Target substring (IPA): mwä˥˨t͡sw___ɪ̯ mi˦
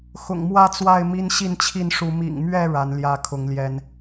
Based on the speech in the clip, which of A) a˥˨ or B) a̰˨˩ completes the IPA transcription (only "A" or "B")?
A